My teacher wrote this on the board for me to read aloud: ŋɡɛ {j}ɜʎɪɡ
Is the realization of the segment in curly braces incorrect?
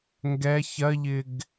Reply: yes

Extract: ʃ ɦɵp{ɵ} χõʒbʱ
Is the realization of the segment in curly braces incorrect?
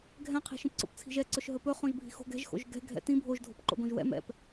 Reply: no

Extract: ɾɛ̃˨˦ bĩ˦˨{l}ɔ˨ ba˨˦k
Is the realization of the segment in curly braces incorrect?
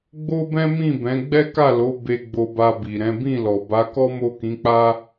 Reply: no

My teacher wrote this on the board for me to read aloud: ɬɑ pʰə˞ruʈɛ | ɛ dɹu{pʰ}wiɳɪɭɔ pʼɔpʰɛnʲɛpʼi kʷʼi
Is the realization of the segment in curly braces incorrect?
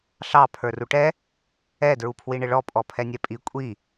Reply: no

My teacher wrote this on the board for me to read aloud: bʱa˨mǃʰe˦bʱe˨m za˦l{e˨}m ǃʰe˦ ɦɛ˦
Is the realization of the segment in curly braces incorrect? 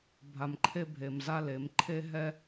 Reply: yes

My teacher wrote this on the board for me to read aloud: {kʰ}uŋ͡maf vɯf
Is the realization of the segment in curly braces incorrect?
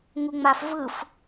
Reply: yes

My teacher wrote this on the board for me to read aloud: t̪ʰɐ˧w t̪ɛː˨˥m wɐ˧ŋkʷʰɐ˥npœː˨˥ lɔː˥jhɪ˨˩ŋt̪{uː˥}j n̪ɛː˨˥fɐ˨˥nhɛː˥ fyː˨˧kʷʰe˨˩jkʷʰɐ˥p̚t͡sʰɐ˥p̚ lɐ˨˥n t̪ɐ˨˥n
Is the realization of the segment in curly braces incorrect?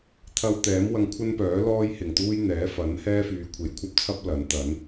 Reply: no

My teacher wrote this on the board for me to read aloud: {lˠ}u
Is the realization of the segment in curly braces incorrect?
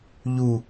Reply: yes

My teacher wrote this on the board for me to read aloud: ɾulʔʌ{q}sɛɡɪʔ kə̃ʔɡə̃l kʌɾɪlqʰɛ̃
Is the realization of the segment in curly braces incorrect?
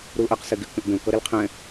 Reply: no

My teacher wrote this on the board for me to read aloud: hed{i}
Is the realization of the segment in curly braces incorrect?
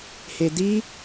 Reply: no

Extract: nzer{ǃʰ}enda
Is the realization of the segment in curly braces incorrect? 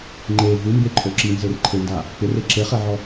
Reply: no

